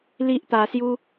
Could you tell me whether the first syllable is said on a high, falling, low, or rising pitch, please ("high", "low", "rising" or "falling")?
high